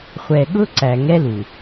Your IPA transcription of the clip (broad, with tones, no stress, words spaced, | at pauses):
χʷɛ˨ɠʊ˦ ǀæ˨ŋɛ˦lu˨